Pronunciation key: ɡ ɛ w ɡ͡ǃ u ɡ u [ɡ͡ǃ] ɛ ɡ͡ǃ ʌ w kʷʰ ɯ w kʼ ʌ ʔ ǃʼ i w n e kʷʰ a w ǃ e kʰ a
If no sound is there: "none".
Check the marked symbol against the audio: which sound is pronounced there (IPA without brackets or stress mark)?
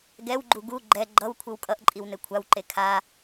ɡ͡ǃ